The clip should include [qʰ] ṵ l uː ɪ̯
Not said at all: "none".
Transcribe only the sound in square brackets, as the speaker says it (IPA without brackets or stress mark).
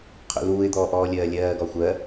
qʰ